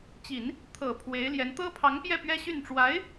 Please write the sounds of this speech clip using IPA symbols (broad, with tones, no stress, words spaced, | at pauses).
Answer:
t͡ɕi˨˩˦n | t̪ʰɤ˨˩ pʰwe˧˥ɪ̯ljɛ˧˥n t̪ɤ˥pʰɑ˧˥ŋpjɛ˥˩ pɥɛ˥ɕy˥˩n ʈ͡ʂwa˧˥ɪ̯